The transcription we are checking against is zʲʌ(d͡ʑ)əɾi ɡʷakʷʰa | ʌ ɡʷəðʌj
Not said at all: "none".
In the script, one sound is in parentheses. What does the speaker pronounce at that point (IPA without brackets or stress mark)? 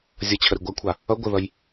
t͡ɕʰ